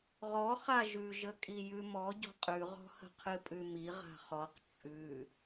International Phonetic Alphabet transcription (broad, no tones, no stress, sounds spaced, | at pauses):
ʁ ɔ χ a ʒ ʉ ʒ ə kʼ i j ʉ m ɔ ɟ ɔ̤ qʼ ʉ ʁ ɔ̤ h ə̤ qʰ ɨ pʼ ʉ m i ʁ a̤ χ ɔ q t͡ʃʼ ʉ